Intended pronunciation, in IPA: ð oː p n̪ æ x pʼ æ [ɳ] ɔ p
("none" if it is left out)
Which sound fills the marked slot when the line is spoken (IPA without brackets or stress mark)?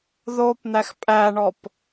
ɳ